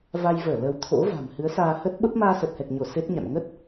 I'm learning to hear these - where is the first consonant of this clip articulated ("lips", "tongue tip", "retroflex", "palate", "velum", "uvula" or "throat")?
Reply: lips